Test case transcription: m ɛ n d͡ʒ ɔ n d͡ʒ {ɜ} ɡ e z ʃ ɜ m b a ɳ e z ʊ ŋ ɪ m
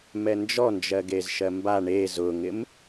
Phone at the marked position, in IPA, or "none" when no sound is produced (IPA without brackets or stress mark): ɜ